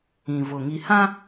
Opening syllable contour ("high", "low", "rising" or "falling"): low